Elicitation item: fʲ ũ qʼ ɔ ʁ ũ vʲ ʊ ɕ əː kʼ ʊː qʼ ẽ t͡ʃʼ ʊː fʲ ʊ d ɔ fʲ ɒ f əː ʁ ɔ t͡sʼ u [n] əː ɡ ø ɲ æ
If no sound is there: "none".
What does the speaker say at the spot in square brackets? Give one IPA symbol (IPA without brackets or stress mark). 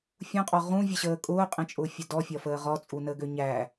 n